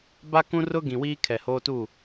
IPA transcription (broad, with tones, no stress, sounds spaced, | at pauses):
b a˦ k ũ˦ r ʊ˦ ɡ ĩ˨ w iː˦ kʰ ɛ˨ h oː˦ t u˦˨